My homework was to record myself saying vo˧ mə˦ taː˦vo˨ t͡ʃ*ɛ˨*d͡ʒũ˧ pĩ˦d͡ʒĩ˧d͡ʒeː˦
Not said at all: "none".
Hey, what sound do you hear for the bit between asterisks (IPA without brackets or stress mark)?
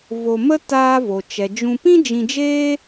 ɛ˨